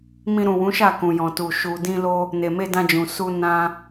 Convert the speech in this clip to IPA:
m ĩ˧ ɾ ũ˨ w ũ˨˦ ʃ a˦˨ k ũ˨ j ɔ̃˨ t u˨ ʃ u˨ d ĩ˧ l o˧ | n e˨ m e˧ d ã˧ d͡ʒ ũ˨ s u˧ n ã˧

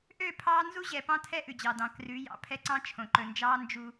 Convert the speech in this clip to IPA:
ʔ ø˦˨ pʰ ɑː˦ n z u˦ ʑ ɛ˨ p ɑ̃˦ tʰ ɛ˦ ʔ ʉ˨ d͡ʑ ɑ˨ d ɑ̃˨ k r ʉ˨˦ j ɑ̰˨ pʰ ɛ˦ ǀ ɑ̃˦ t͡ʃʰ õ˨ ǃ ɵ˨ n d͡ʒ ɑː˦ n d͡ʒ u˦

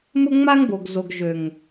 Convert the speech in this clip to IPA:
m ʊ˦ ŋ͡m a˦ ŋ b o˨ ɡ z o˨ ɡ ʒ ø˨ ŋ

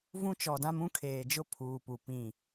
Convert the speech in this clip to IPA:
v ũ˦ t͡ʃ ɔ˨ d ã˦ m ũ˦ kʰ eː˨ d͡ʒ ʊ˦ pʰ uː˨ p u˨ p ĩ˦˨

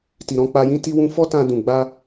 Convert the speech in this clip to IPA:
t i˨ ɾ ɔ̃˨˦ k͡p a˧ j ĩ˦ t i˧ w ũ˧ f ɔ˦ t ã˧ d ũ˨ ɡ͡b a˧

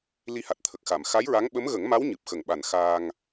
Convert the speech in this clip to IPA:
l i˧ h a˨˩ t̚ t̪ʰ ə˨˩ k̚ x a˨˩˨ m x a˧˥ j ɹ a˧˥ ŋ ɓ ə˧˥ m ɣ ə˨˩˦ ŋ m a˧˥ w ɲ ɨ˨˩ p̚ x ə˨˩ ŋ ɓ a˨˩ n x aː˧ ŋ

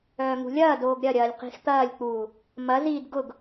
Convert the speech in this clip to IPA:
œː ŋ ṳ lʲ ɐː d oː ɡ ɾʲ ɐ ɾʲ ɐː lʲ q i̤ x t̪ ɐː lʲ k͡p uː | m ɐ z iː d ɡ ʊ ɡ

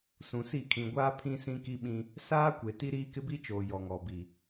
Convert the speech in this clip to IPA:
s ũ˨ s i˦˨ kʰ ĩ˨ ɡʷ aː˦ pʰ ĩ˦ s ĩ˦ k i˦ ɓ ĩ˦ | s aː˦ kʷ e˨ t i˦ ɾ iː˦ k ɪ˦ b i˦ t͡ʃ oː˨ j ɔ˨ ŋ ɔ˨ b i˨

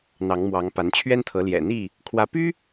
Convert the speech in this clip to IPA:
n̪ ɑ˨˦ ŋ m w ɑ˨˦ ŋ p a˨˦ n t͡ɕʰ ɥ ɛ˦ n t̪ʰ ɤ˨˦ l j ɛ̰˨˩ n̪ i˥˨ | kʰ w ä˨˦ p y˦

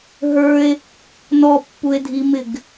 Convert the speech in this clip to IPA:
ɦ ə˞ e̯ | n ɔ pː u e̯ dʱ i m ɪ ɡ

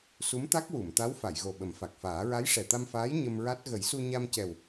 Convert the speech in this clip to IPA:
s u˧˥ m t̪ a˦˥ k̚ w u˨˩˨ m t̪ a˧˥ w f a˨˩˨ j ɣ o˨˩ ɓ ə˨˩˦ m f a˨˩ k̚ f aː˨˩˦ ɹ a˧˥ j ʂ ɛ˨˩ t̪ a˧ m f aː˧˥ j ɲ ə˧ m ɹ a˦˥ t̚ ɣ ə˨˩˦ j s u˧ ɲ a˧ m c ɛ˨˩ w

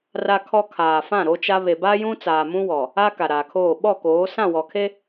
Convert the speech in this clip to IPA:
r a˦ kʰ ɔ˦ kʰ aː˨ f ã˦˨ ɾ o˦ t͡ʃ a˦ β e˨ b a˦ j ũ˦ t͡s aː˨ m ũ˦ w ɔ˨ | a˦ k a˨ ɾ aː˨ kʰ oː˦˨ ɓ ɔ˦˨ k oː˨˦ s ã˦˨ w ɔ˨ kʰ e˦

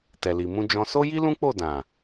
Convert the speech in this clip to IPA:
t ɛ˨ l i˨ m ũ˧ d͡ʒ ɔ̃˧ s o˦ j i˦ l ũ˦ k͡p o˦˨ d ã˨

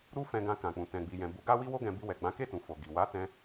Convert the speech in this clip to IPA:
ɾ u˦ f ɛ̃˧ ɡ ã˧ k ã˨ k͡p ũ˨ t ɛ̃˨ ɡ͡b i˨ j ɛ̃˨ b u˨˦ ɡ a˦ w i˦ w o˦ ɡ ɛ̃˧ b i˧ w ɛ˨ ɡ͡b ã˨˦ k e˦˨ t ũ˨ f o˨ ɡ i˨ w a˨˦ t ɛ̃˧

